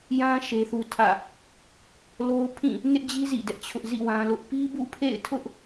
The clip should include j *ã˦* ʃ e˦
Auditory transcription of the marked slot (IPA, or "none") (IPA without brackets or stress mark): ã˦